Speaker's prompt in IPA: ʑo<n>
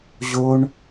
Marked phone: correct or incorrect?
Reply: incorrect